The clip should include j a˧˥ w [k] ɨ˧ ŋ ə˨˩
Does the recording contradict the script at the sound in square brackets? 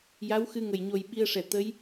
yes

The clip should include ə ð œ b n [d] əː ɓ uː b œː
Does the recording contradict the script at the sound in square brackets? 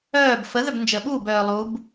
yes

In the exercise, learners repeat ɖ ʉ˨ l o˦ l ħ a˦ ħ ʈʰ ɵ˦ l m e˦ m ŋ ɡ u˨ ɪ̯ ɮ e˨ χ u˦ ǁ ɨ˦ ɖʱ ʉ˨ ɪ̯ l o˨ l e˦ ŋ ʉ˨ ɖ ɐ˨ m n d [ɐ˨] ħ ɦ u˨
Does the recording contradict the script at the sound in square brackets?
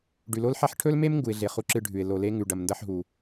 yes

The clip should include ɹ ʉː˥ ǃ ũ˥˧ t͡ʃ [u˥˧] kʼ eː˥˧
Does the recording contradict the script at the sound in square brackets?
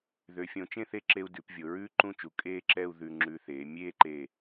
yes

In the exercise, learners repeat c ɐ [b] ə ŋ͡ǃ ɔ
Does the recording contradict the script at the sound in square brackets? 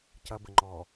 no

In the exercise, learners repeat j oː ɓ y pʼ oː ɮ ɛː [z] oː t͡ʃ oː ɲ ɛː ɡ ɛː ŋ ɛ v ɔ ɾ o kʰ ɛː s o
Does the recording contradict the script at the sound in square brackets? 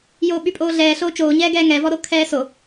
yes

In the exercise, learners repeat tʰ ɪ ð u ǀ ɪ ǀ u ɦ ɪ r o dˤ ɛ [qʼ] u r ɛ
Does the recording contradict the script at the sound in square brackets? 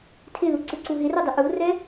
yes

